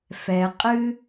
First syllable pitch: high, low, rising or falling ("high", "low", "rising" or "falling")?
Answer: low